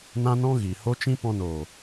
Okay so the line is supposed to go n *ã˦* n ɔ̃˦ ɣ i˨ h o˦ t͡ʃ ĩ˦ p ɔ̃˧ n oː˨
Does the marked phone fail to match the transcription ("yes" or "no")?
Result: no